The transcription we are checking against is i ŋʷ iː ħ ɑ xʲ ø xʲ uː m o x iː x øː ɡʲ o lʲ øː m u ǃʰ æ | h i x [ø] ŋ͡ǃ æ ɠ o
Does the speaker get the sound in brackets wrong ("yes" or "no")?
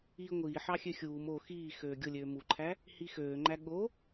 yes